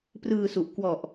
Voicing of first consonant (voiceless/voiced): voiceless